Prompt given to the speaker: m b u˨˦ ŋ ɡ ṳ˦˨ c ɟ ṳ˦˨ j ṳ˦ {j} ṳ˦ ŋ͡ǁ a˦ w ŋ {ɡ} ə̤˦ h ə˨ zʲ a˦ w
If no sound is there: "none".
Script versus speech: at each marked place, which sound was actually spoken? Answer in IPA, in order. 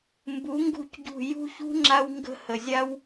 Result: ç, ɡ

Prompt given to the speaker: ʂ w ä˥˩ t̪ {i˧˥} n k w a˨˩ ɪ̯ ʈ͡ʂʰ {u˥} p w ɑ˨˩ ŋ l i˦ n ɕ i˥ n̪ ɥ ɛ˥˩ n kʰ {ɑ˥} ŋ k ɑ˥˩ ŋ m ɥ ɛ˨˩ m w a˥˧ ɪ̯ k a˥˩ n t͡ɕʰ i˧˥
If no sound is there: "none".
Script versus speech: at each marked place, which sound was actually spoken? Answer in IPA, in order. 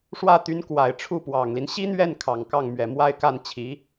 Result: y˧˥, u˥˩, ɑ˨˩

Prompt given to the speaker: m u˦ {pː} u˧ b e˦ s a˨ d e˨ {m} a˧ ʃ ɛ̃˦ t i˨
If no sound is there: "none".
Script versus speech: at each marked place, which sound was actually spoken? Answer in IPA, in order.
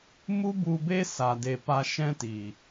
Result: b, p

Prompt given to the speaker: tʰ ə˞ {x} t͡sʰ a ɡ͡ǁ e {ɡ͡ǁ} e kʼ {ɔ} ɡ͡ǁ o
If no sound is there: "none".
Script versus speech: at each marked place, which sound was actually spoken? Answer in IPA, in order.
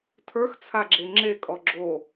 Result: x, ŋ͡ǁ, ɔ

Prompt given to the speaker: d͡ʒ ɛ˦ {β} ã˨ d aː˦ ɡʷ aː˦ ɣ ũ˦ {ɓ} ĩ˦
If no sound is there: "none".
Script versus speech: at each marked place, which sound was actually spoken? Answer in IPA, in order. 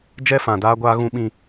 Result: f, ɓ

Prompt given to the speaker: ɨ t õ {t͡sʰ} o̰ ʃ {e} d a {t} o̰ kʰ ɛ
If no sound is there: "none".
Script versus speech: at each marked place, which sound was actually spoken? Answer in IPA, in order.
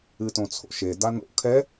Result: t͡sʰ, e, n

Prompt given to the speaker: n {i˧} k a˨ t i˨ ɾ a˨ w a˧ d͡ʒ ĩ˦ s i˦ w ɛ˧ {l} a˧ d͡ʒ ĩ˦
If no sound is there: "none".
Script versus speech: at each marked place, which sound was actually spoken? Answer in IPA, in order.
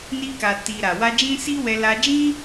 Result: i˧, l

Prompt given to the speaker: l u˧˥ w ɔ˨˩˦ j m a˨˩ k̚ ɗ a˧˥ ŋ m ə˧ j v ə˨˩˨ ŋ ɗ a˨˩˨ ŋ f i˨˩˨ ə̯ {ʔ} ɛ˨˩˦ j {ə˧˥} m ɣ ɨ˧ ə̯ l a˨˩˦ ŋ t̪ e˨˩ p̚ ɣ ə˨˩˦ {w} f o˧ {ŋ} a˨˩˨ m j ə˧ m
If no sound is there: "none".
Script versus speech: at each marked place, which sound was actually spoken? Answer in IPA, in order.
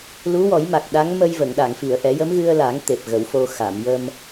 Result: ʔ, ə˧˥, w, x

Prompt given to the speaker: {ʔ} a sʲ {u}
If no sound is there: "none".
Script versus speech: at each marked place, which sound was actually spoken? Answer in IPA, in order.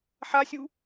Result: ħ, u

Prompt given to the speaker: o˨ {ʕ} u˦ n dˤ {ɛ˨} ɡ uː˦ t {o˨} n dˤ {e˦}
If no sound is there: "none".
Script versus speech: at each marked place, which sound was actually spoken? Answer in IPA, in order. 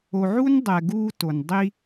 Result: ʕ, ɛ˨, o˨, i˦

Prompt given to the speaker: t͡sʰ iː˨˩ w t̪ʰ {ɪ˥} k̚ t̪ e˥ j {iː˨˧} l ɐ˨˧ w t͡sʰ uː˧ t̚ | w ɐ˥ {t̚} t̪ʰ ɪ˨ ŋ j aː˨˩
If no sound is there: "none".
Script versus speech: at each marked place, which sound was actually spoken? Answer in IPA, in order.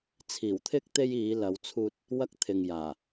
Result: ɪ˥, iː˨˧, k̚

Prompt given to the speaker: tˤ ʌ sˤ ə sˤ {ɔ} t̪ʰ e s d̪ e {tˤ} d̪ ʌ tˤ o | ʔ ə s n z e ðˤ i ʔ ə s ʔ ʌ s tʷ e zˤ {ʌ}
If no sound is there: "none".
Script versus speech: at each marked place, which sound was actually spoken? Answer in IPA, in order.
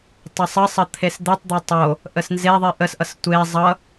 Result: ʌ, tˤ, ʌ

